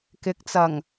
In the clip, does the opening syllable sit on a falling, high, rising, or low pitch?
rising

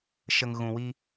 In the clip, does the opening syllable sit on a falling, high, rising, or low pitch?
low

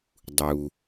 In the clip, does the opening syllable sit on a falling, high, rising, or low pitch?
low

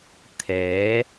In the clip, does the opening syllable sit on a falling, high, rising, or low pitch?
rising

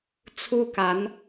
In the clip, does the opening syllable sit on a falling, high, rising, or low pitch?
high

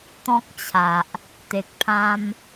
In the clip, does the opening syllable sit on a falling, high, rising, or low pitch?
high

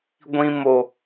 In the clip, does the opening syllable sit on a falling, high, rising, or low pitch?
high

